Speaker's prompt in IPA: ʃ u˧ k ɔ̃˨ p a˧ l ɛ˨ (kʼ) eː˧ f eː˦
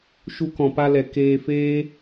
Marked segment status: incorrect: k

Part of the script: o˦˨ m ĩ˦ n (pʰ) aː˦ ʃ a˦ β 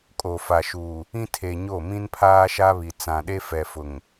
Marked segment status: correct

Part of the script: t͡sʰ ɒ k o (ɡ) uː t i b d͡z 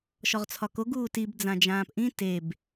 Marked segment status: correct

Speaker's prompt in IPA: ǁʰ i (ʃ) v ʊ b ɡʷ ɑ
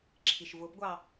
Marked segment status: correct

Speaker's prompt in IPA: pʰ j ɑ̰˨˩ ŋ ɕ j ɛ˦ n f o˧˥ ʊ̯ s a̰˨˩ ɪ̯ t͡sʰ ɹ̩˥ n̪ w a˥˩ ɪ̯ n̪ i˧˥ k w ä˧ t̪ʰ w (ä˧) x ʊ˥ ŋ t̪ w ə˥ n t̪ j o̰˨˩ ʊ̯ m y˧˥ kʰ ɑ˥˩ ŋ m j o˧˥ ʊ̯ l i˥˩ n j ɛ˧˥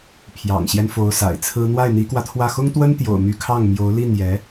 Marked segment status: incorrect: ä˥˩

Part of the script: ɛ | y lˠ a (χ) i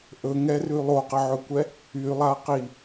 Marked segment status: incorrect: q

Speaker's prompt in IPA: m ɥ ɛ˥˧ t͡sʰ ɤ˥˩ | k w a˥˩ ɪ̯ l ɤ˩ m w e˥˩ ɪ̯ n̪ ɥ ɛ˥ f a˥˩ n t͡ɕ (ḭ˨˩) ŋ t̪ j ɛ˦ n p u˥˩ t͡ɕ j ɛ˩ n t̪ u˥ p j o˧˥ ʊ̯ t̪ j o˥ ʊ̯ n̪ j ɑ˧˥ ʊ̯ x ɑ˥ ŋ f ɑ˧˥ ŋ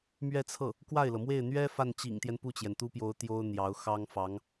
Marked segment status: correct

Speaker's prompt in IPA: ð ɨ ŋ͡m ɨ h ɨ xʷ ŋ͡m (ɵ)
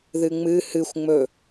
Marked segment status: correct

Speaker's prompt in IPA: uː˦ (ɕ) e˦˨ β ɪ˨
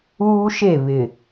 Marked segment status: incorrect: ʃ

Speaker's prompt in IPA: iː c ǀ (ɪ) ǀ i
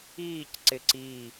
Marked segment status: correct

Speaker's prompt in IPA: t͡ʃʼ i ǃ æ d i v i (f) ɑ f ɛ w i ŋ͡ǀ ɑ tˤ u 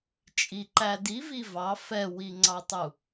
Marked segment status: incorrect: v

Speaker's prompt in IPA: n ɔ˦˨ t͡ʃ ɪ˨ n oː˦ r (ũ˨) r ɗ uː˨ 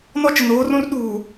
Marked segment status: incorrect: ũ˦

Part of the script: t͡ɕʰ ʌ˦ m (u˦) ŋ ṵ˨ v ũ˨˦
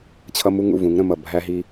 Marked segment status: correct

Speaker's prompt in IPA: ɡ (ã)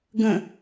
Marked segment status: incorrect: ə̃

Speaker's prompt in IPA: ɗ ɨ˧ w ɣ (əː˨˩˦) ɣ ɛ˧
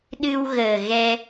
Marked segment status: incorrect: əː˨˩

